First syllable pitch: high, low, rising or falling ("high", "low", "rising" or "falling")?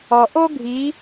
low